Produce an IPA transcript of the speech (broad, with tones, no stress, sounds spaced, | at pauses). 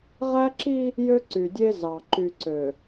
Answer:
ʁ æ˦ ǁ i˦ | j ø˦ ǀ y˨ dʲ e˦ z ɑ˨ ǃ y˨ ǀ ø˨